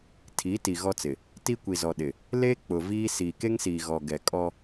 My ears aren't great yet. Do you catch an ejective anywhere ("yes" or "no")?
yes